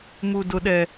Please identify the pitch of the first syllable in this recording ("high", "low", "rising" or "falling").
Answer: high